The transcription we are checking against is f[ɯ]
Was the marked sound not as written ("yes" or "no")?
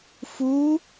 yes